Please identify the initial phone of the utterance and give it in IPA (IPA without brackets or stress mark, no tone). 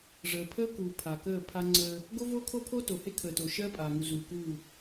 ʐ